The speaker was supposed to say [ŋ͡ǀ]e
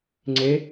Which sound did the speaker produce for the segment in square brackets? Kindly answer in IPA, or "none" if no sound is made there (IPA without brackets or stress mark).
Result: ŋ͡ǀ